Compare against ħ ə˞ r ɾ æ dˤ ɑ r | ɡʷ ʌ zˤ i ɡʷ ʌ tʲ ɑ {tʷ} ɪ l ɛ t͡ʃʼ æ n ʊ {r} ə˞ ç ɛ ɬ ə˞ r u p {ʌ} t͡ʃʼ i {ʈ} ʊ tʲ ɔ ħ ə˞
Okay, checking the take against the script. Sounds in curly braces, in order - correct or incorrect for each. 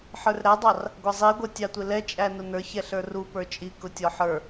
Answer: correct, incorrect, incorrect, incorrect

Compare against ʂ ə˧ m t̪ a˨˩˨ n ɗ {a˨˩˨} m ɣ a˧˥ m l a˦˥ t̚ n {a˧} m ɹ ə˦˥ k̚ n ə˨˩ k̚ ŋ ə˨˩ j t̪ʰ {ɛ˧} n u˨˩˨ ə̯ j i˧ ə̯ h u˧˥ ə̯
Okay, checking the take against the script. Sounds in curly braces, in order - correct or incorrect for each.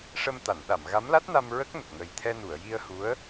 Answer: correct, correct, correct

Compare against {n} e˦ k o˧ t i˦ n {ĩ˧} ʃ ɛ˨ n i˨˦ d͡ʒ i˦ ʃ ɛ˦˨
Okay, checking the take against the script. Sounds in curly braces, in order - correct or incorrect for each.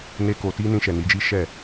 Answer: correct, correct

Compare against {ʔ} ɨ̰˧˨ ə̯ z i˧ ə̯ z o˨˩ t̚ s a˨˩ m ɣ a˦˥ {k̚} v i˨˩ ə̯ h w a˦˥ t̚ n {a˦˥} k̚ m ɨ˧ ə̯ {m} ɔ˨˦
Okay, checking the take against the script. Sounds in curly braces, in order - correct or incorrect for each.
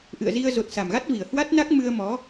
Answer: correct, incorrect, correct, correct

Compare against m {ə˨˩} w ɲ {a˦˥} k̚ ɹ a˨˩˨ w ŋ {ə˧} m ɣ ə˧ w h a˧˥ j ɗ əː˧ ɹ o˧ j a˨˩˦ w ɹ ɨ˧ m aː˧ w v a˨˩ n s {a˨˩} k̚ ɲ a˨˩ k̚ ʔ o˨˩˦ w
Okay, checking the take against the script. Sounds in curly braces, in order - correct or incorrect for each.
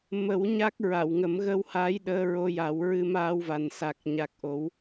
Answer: incorrect, correct, incorrect, correct

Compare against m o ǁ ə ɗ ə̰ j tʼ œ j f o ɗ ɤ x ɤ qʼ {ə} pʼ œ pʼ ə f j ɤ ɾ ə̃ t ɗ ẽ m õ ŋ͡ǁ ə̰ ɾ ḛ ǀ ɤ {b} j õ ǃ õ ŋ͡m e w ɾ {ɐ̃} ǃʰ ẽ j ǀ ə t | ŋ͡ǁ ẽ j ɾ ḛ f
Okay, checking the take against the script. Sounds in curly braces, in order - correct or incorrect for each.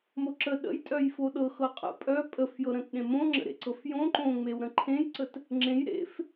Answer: incorrect, incorrect, incorrect

